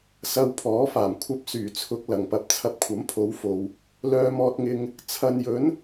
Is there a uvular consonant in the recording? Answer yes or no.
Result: no